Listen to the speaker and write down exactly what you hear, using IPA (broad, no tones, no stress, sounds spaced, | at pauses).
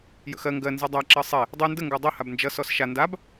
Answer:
j ə̰ x ɜ ŋ ɡ ɜ n z ɘ dˤ a ǁ ɜ sˤ e | dˤ ɨ n d ə ŋ ɡ o dˤ o h a b n d͡ʒ ʌ s ɔ s ʃ a n d a b